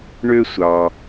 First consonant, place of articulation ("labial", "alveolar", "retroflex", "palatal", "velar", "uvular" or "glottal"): retroflex